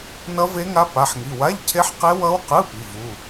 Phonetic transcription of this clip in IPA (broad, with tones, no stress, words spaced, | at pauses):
nʌ˦˥ve˦˥ŋa˦˥ pa˧˥˧ħŋi˧˥˧ wa˧˥˧ʎcʰe˦˥ħqe˦˥ wʌ˦˥wqɯ˧˥˧ pi˧˥˧vu˧˥˧